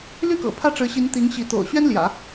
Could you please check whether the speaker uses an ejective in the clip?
no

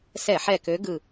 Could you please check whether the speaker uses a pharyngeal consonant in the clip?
yes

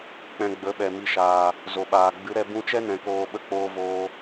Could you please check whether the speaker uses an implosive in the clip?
yes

